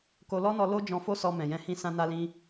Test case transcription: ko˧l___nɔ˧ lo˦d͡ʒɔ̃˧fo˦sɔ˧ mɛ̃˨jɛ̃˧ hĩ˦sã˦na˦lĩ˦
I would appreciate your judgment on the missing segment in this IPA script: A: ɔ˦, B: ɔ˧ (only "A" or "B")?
A